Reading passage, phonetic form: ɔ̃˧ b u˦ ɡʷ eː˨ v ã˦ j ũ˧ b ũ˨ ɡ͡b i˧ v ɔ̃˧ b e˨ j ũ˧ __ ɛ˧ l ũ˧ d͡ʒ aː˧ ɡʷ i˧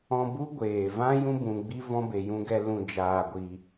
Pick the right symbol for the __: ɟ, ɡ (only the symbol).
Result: ɡ